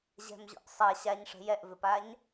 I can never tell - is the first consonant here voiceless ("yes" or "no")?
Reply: no